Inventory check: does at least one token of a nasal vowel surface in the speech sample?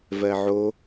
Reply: no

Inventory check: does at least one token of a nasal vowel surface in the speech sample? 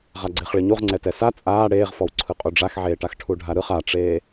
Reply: no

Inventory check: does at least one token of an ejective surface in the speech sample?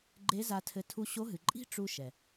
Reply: yes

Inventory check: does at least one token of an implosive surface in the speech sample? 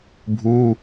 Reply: no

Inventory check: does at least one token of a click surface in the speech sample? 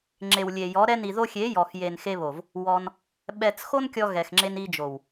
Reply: yes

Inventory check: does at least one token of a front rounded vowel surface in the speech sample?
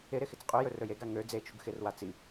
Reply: yes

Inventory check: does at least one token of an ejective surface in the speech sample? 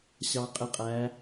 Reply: yes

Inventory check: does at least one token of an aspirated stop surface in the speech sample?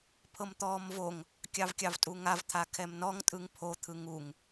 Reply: yes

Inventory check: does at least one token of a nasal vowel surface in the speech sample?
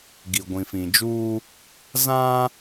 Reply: yes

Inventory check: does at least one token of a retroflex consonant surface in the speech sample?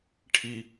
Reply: yes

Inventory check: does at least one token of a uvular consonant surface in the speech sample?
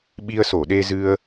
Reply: no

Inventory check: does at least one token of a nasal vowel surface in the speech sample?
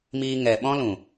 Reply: yes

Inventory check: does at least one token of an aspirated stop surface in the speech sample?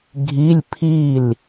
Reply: yes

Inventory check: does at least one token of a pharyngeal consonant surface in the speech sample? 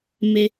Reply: no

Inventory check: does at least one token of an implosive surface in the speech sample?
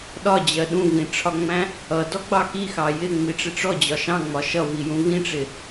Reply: yes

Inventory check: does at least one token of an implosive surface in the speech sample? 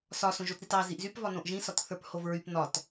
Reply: no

